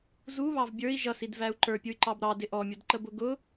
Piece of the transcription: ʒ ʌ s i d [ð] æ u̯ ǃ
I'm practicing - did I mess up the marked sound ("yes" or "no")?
yes